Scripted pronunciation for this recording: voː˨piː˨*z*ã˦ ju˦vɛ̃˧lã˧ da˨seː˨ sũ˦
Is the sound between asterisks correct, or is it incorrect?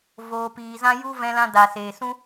correct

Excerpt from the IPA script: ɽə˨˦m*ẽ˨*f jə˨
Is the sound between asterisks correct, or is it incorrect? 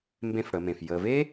correct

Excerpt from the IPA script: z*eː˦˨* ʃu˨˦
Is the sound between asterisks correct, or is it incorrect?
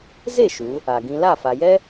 incorrect: e˦˨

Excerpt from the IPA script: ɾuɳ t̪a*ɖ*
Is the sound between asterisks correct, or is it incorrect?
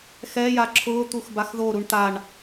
incorrect: ɳ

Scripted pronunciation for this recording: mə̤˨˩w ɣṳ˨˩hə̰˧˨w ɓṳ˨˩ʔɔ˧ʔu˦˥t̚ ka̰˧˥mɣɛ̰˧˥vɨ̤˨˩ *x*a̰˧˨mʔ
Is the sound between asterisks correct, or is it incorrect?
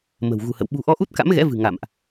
incorrect: ŋ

